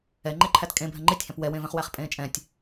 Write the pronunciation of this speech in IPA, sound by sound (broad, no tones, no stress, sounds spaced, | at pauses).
ɛ ŋ͡ǃ e ǃʰ æ t kʼ ẽ bʱ ɛ̃ ŋ͡ǃ i tʲ h æ̃ p w ɛ w ẽ v ɛ̃ χ w æ χ pʼ ẽː t͡ʃʼ ɛ̃ tʲ